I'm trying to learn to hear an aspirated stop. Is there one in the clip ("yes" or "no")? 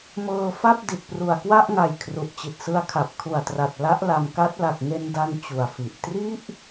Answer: yes